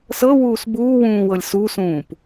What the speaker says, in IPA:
s ɤ w uː s b uː w ũː w ɤ lʲ s u s ũː p

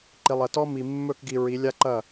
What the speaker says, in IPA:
ǃ i˨ lˠ ɐ˨ t ɔ˦ m i˨ mː ɵ˦˨ k ɡ i˨ ɹ i˨˦ lʲ a˦ ǃ ɐ˦˨

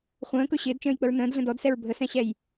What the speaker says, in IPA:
χʷ ə̃ː k ɵ ɕ ɪː d t͡ʃ ə̃ː j k͡p ə ɹ n ə̃ː d ɮ ə̃ d ɔ d s ɛ ɹ bʱ ə s ɛ̃ ɕ ɛ j

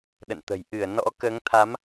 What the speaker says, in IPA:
ɗ ə̰˧˨ n t̪ ə̤˨˩ j ʔ ɨ˧˩ ə̯ n ɔ̰˧˥ k əː˨˦ ŋ t̪ʰ a˨˦ m

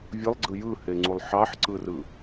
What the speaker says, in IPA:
vʲ ɯ lˠ ɡ͡ǀ ɯ j ɯ h e ŋ͡ǀ u lˠ ħ ɑ ħ ǀ ɯ r ɯ

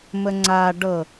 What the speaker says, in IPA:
m ə ŋ͡ǀ a ɖ ɤ

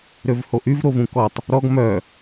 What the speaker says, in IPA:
ɾ ø v h o ʔ y v ɾ o v ũ k ɔ tˤ | ɾ ɔ ɡ m œ

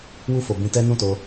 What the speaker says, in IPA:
w u˧ f o˨ b ĩ˧ t ɛ˦ n ũ˦˨ t o˧

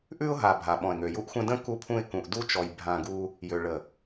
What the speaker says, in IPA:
ʔ ʉ˦ ʊ̯ ɦ a˨ bʱ a˨ ɓ ɔ̃˨ ɪ̯ ŋ ø˨ j u˦ ʔ xʷ ə̃˦ d ə̃˦ k u˦ pʰ ũ˦ ɪ̯ k ũ˨ ʔ d u˦ t͡ʃ ɔ˨ j bʱ ã˦˨ ɡ u˦ | j ø˨ ɭ ə˨

